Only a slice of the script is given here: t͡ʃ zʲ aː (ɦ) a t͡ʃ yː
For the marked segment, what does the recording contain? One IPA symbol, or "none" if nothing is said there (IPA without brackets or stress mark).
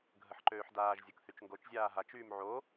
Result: ɦ